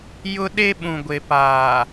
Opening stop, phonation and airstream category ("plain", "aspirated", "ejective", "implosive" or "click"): implosive